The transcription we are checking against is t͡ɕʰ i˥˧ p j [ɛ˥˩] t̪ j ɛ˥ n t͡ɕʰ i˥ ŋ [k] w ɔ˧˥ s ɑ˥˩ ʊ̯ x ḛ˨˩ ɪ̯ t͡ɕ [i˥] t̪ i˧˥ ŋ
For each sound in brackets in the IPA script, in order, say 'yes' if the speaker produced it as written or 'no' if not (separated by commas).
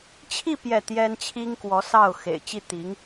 yes, yes, no